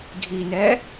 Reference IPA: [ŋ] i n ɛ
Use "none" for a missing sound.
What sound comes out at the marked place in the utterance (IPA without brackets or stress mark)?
ɡʱ